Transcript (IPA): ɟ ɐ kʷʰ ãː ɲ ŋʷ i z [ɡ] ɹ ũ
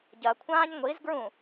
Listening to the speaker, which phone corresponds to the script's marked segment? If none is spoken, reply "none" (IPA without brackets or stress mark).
ɡ